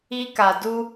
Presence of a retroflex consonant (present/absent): absent